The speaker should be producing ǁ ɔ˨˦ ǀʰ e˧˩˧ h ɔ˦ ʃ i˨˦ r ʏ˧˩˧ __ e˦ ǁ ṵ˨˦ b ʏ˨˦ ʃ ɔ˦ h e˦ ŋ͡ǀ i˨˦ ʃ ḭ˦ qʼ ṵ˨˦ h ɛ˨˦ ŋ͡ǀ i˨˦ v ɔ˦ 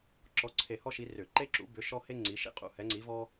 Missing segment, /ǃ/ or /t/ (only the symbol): ǃ